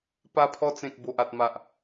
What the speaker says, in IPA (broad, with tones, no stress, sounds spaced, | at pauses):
p a˧ pʰ ɔ˧ t͡s ẽ˨ k̚ b o˨ ʔ a˨ t̚ m a˨ ʔ